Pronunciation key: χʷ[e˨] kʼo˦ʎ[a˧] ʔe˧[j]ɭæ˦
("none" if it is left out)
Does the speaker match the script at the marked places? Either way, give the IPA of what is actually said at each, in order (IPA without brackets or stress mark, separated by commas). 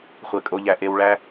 e˨, æ˧, w